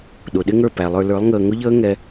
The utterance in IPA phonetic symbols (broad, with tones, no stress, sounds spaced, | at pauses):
ɗ ʊ˨ ɗ ɪ˦ ŋ ə˞˦˨ p æ˨ lˠ ə˞˧ l ə˞˨˦ lˠ ŋ əː˧ ŋ ʊ˦ ʎ əː˦ ŋ ɛ˧